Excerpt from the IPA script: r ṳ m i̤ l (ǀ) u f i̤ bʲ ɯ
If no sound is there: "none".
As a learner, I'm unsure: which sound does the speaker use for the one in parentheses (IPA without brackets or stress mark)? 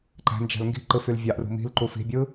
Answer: ǃ